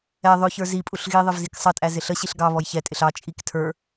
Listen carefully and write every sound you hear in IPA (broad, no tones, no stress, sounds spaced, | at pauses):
ɛ ðˤ ʊ ç ə˞ z i pʼ u ɬ ɣ i ðˤ ɪ v z i k sˤ ʌ tʼ æ z ɪ ɬ ə ɕ i ɬ ɡ ɑ β ɔ j ç ɛ tʼ ɪ ɬ ɑ t͡ʃʼ i k tʰ ə˞